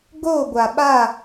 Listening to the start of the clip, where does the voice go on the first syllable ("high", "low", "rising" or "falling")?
falling